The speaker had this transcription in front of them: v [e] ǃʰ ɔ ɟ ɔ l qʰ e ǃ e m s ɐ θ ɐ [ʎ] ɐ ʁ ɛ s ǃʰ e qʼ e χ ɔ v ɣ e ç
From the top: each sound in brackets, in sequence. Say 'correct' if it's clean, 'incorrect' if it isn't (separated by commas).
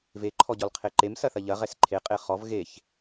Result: correct, correct